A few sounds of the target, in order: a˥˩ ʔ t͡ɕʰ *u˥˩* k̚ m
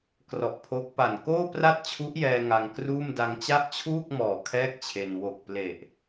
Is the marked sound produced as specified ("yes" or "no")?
no